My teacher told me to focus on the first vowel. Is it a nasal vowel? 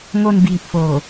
no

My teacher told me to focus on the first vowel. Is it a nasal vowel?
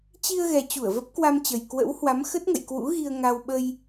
no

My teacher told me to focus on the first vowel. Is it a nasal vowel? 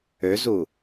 no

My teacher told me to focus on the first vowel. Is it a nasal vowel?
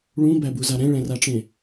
yes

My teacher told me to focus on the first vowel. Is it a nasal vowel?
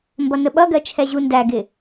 no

